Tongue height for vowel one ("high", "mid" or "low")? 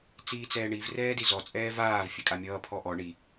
high